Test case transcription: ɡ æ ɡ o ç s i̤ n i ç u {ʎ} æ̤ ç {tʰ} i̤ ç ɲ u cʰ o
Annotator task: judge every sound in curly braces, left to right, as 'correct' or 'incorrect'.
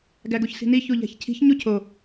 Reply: correct, incorrect

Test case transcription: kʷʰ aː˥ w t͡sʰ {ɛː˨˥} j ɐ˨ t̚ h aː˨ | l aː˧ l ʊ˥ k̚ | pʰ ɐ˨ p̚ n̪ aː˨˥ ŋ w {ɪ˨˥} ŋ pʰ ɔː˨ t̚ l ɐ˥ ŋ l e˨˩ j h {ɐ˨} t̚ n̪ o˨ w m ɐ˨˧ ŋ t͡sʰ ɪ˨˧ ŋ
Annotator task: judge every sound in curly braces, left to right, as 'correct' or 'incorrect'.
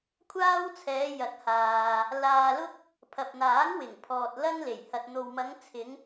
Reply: incorrect, incorrect, correct

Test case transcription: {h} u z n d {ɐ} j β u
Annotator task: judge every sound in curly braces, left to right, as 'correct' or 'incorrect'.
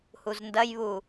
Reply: correct, correct

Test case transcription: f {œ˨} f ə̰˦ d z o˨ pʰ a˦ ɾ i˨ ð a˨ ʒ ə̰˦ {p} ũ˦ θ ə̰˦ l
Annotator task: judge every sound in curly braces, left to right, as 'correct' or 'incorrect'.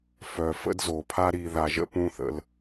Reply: correct, correct

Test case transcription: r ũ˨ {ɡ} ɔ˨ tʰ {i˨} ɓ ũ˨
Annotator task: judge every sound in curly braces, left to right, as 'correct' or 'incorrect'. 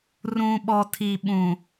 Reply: incorrect, correct

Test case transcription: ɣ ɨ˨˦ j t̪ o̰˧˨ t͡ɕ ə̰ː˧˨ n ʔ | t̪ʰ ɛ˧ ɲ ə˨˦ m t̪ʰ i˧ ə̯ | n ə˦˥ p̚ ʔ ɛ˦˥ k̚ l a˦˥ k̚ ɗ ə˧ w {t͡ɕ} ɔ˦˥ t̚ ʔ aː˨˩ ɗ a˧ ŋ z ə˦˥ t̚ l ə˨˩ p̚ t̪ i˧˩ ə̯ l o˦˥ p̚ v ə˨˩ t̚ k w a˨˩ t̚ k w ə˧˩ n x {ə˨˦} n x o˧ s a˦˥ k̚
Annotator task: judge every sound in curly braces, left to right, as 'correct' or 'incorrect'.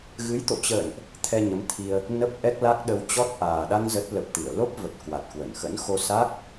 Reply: correct, incorrect

